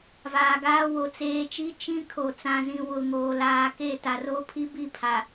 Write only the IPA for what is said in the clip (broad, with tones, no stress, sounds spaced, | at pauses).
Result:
v aː˨ ɡ aː˦ w o˨ t͡s eː˨˦ t͡ʃ i˦ t͡ʃ ĩ˦ kʰ o˨ t͡s ã˨ z ĩ˨ w ʊ˨ ŋ oː˨ l aː˨ k e˦˨ t a˨ r o˦ pʰ i˦ b i˦˨ pʰ a˨